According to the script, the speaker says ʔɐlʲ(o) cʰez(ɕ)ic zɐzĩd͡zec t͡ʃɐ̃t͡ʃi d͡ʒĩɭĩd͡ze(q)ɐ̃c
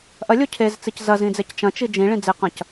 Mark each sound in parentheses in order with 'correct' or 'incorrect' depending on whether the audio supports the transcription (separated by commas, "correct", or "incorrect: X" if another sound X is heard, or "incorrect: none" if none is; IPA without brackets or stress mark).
correct, incorrect: t͡s, correct